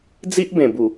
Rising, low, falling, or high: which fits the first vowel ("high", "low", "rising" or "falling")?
high